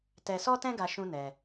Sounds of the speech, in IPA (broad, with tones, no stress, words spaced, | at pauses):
tɛ˧sɔ˦tɛ̃˦ɡa˧ ʃũ˦nɛ˧